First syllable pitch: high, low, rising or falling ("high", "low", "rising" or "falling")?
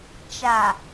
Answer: low